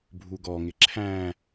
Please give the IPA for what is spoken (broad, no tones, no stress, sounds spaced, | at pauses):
bʱ u ɡ ɔ ŋ ɪ ǁʰ æ̃